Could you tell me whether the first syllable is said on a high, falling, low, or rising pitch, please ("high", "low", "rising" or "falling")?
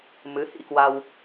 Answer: rising